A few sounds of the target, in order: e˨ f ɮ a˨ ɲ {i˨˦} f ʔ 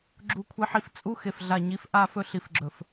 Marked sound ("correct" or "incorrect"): correct